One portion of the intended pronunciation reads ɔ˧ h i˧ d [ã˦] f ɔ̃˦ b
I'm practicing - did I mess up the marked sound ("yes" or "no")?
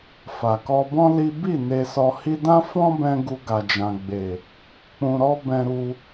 no